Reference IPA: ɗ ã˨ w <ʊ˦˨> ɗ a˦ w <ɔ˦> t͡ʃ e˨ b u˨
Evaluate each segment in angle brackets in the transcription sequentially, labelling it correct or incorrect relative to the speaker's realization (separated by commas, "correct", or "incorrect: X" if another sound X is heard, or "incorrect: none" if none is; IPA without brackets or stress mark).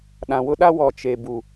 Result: incorrect: ʊ˦, incorrect: ɔ˨